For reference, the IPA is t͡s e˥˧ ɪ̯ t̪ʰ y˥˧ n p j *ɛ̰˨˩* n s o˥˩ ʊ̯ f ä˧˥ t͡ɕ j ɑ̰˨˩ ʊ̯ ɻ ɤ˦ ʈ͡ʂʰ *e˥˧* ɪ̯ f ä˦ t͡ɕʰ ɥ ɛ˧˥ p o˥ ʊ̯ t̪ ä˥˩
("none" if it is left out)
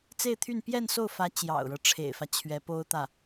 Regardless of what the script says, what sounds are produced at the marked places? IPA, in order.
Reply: ɛ˥˧, ḛ˨˩

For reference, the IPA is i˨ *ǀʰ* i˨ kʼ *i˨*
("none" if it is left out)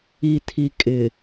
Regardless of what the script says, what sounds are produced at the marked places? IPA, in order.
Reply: tʰ, ɪ˨

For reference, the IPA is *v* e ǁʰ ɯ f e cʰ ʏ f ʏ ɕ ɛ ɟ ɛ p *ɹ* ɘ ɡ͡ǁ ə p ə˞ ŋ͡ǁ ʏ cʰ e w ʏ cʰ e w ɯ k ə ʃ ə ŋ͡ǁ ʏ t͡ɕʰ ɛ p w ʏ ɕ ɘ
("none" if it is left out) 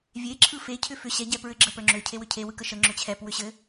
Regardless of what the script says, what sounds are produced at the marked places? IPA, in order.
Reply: vʲ, ɹ

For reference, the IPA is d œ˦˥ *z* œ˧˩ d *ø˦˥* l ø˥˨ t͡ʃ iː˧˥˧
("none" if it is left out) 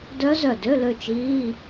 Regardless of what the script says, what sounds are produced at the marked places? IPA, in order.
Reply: z, ø˧˥˧

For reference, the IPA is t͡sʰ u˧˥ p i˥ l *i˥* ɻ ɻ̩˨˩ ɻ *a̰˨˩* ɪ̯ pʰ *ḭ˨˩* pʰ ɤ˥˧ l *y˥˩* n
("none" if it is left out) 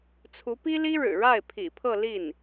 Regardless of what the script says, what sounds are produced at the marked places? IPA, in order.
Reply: i˥, a˥˩, ḭ˨˩, i˥˩

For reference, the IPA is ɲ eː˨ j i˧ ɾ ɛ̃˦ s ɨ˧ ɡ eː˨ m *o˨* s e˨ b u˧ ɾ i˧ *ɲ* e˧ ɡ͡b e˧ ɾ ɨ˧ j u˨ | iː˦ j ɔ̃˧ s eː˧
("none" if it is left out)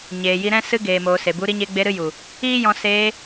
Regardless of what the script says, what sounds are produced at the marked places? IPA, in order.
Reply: oː˨, ɲ

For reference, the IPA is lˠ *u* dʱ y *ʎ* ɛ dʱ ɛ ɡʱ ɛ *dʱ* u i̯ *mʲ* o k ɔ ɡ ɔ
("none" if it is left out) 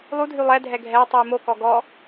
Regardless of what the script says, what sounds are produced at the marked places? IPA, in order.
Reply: u, lˠ, tˤ, m

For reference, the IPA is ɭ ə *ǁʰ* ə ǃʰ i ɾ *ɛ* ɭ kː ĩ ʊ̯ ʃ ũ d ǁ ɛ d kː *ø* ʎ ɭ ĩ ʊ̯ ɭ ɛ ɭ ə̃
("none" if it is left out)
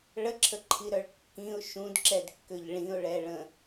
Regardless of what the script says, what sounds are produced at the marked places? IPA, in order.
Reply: ǁʰ, œ, ø

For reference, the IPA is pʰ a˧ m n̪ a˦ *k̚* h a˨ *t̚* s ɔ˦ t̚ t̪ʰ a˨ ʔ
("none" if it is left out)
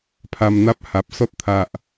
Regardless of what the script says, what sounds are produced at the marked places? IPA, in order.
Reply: p̚, p̚

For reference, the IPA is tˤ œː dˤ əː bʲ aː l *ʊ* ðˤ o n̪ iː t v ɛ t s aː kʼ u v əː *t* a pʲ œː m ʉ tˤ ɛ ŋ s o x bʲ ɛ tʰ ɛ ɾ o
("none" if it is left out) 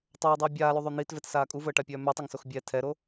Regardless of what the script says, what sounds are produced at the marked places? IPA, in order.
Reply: ʉ, ʈ

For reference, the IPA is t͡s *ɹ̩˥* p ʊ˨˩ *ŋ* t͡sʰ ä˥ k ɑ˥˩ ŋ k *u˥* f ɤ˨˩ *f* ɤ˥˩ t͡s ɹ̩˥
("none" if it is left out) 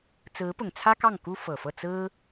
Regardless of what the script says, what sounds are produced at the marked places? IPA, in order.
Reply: ɹ̩˧˥, ŋ, u˥, f

